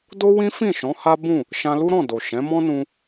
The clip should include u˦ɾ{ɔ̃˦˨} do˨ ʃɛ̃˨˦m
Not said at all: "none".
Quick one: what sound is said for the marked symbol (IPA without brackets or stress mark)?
ɔ̃˦˨